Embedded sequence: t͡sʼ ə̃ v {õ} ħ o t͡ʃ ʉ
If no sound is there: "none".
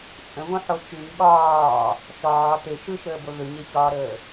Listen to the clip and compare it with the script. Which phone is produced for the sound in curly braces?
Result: õ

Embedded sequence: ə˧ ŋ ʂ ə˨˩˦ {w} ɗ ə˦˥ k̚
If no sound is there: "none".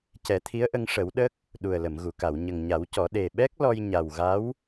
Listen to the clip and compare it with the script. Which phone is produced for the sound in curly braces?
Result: w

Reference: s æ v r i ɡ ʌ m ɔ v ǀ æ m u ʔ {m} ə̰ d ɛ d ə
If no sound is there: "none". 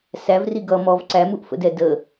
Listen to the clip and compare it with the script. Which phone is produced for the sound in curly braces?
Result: f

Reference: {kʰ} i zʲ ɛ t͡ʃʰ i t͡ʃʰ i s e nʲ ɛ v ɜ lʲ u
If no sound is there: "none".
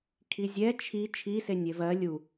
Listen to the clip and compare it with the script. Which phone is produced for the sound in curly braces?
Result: kʰ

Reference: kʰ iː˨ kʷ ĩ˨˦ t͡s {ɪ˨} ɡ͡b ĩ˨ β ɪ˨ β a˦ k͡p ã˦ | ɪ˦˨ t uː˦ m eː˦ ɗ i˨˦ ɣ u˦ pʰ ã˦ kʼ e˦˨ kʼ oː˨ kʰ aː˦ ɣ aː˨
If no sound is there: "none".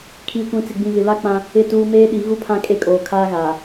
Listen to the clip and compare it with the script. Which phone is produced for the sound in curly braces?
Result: ɪ˨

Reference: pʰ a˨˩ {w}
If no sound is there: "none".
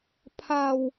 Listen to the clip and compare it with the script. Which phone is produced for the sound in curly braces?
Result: w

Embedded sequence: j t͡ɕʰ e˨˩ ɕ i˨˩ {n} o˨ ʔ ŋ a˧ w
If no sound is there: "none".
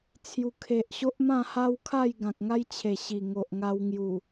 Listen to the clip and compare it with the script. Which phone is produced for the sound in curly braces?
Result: ŋ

